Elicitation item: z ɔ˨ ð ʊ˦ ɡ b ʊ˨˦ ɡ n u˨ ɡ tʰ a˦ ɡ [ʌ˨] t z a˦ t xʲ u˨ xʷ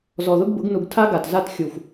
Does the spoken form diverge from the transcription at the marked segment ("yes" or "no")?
yes